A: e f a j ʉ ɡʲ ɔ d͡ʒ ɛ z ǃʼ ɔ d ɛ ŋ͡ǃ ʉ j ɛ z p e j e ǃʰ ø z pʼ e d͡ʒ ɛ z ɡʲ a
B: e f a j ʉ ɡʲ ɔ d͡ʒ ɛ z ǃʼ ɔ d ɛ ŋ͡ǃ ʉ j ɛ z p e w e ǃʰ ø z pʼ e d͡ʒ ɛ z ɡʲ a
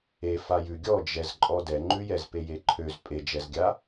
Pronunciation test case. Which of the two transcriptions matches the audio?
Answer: A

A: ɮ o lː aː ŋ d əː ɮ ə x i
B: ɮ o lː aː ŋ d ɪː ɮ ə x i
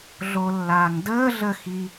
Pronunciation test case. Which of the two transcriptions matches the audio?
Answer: A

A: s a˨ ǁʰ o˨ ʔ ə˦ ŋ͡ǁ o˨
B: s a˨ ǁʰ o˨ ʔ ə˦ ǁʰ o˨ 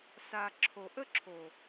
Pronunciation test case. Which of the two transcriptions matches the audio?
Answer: B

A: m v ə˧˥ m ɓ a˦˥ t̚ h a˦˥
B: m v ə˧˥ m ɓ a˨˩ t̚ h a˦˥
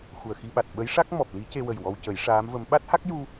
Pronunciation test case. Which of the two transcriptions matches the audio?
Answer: A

